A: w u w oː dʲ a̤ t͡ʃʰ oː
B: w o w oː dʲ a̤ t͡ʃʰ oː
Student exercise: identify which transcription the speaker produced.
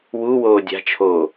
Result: A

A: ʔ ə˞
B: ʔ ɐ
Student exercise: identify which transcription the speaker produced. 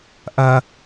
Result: B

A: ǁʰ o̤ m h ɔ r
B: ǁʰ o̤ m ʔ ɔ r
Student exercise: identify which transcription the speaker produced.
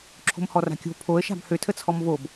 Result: A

